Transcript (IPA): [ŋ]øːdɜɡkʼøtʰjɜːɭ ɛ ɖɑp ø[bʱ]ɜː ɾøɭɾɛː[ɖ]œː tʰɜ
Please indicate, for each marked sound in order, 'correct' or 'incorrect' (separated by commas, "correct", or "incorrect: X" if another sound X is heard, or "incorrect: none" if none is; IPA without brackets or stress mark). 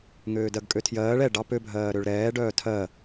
correct, correct, correct